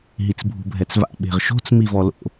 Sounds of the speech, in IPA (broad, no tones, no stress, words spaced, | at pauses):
ɦit͡sbʱṳbʱɛt͡sva̰ ɓe̤ʁʃo̤t͡s mivɔlo̰